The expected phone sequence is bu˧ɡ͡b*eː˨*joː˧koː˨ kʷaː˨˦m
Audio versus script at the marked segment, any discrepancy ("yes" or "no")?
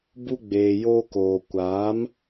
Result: no